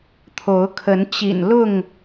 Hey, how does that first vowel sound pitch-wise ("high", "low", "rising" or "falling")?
rising